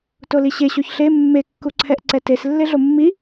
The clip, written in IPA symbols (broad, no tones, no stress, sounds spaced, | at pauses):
t o l i ɕ e ɕ o ç ɬ e mː e kː u ǀʰ ɛ ʔ ǀ ɛ t e s lː e ɮ o mː i